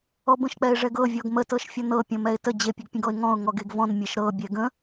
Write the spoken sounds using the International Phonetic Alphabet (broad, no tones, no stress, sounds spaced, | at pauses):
ɔ b ə̃ ʃ k͡p ɛ ɪ̯ ʐ ɛ ɡ ɤ vʲ ɔ ɡ m ə t ɤ ʃ fʲ ɔ n ɤ pʲ ɔ̃ m ɛ ɪ̯ t ə d͡ʑ e pʲ ə ɡ pʲ ə̃ ɡ ɔ ɪ̯ ŋ ɔ̃ ʊ̯ ŋ ɔ ɡ e ɡ v ɔ̃ n mʲ e ʃ ɾ ɤ bʲ ɛ ɡ ə̃